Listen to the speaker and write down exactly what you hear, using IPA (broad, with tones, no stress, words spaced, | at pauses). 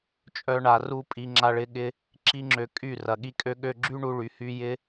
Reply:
t͡ʃʼœ˦ɳa˧ru˦ pʼi˧ŋ͡ǁa˧ ɭɪ˧ɠɪ˧ | ǁi˦ŋ͡ǁø˧kʼy˦˨rɐ˨ ɠi˧kʼø˧ɠø˧ɡ͡ǁy˦ ɳu˧ɭy˨hy˧ jɪ˦